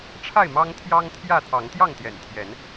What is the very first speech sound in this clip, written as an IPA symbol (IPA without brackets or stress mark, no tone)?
ʈ͡ʂʰ